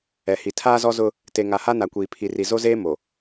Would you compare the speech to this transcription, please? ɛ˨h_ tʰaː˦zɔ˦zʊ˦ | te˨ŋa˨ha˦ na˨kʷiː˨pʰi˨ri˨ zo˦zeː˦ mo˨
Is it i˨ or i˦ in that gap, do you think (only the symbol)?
i˨